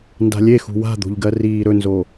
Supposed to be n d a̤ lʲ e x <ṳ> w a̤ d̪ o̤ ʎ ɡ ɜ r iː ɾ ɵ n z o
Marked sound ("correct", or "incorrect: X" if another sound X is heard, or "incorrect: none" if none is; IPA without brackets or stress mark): correct